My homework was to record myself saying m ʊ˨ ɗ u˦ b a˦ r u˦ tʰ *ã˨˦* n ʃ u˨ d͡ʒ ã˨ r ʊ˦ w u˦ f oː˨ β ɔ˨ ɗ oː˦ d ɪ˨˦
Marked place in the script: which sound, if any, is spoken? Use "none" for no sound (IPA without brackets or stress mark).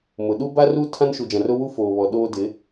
ã˦